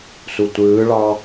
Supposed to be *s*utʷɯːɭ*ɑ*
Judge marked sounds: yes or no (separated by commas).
yes, yes